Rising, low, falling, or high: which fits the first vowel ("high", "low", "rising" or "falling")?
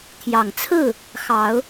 low